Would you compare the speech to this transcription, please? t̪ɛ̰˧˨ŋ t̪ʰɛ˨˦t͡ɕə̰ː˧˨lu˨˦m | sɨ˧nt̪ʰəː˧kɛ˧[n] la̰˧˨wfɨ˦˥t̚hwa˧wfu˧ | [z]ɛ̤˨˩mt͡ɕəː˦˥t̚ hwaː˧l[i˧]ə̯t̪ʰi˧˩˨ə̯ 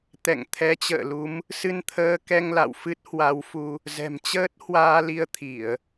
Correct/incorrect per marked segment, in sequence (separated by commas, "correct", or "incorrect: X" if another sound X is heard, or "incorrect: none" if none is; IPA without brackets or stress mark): incorrect: ŋ, correct, correct